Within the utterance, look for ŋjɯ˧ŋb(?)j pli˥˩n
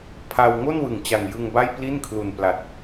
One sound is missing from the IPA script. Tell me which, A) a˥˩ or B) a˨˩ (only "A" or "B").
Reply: A